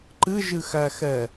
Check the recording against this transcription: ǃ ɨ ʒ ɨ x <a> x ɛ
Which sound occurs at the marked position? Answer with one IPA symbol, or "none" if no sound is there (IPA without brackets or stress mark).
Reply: æ